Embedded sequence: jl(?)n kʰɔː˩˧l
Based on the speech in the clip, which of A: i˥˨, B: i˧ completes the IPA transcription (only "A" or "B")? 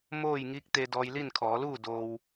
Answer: A